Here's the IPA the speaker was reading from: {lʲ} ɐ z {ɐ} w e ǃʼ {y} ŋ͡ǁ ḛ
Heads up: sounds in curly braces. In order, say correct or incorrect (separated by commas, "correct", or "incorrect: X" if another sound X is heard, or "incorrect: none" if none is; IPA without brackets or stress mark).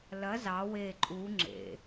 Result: incorrect: l, incorrect: ɑ, incorrect: u